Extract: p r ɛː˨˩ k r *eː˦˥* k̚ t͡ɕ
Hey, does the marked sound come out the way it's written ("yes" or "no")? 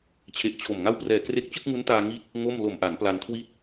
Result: no